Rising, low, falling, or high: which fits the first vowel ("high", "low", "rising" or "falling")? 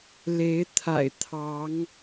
rising